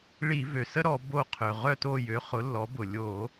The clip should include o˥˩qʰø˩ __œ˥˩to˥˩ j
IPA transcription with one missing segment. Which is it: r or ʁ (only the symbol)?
ʁ